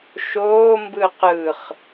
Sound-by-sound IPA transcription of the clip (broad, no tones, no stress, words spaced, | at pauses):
ʃoː mbɯqɯχ